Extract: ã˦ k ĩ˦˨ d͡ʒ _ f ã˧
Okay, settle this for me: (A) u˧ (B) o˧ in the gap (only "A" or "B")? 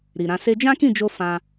B